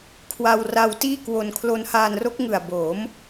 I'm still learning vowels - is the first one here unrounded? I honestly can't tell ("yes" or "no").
yes